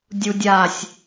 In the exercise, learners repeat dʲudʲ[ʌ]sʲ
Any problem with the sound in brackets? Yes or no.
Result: yes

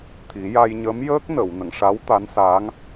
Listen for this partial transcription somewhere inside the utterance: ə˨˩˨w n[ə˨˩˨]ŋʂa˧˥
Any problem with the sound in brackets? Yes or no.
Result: no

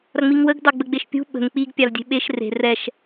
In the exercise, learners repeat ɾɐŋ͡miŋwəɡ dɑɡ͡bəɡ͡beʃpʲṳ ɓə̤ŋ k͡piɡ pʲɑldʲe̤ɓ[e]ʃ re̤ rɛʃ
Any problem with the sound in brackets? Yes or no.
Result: no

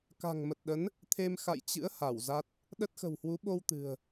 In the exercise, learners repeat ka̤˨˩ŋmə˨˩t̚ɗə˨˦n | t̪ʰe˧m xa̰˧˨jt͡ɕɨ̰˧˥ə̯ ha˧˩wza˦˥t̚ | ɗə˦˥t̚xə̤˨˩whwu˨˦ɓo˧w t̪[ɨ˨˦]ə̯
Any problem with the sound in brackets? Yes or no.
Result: yes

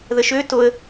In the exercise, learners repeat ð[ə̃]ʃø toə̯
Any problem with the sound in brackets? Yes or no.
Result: yes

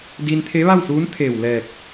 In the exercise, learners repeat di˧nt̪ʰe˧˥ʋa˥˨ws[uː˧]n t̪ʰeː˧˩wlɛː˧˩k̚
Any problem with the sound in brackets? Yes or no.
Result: yes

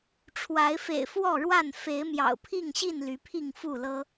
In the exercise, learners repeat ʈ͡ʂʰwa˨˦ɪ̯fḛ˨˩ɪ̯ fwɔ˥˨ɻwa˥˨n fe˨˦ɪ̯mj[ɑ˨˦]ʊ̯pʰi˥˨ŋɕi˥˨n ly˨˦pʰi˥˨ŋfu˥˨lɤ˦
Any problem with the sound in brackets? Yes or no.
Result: yes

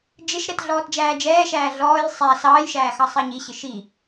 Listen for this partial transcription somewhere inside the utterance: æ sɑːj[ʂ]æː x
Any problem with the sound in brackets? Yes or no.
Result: yes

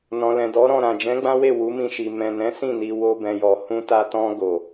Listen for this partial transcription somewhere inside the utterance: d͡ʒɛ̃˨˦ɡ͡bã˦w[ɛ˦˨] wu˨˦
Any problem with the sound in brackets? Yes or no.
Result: yes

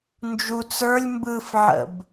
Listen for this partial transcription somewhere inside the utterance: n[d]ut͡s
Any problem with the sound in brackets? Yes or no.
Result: yes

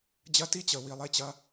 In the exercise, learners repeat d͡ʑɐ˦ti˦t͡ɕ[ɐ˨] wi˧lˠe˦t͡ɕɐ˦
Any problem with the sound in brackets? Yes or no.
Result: yes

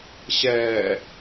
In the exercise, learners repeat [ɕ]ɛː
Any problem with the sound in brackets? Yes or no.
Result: no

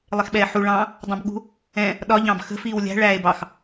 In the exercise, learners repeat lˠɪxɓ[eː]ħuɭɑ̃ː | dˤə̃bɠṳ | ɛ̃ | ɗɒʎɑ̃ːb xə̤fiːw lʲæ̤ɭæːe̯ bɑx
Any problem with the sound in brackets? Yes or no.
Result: yes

